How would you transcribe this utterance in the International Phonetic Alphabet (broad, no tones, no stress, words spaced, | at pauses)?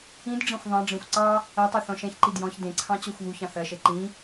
ĩdɖ͡ʐẽxʷ ðˤɑ̃ɖ͡ʐẽxʷ ǀɑ | ɐtˤu θɔ̃ʃɛ̃çǃid jɔ̃ç dẽǀʰɑ̃ t͡ɕɔxʷβuçɑ̃θ ɐʃɛ ǃĩ